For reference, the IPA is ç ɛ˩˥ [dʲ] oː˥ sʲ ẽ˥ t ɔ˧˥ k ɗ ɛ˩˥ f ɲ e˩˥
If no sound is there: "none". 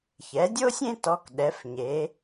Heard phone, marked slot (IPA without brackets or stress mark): dʲ